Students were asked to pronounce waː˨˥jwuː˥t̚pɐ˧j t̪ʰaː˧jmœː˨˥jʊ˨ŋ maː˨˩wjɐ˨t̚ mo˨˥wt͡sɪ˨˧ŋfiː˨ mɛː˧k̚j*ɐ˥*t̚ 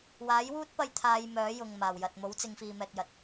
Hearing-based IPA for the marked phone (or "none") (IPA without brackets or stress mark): ɐ˨˥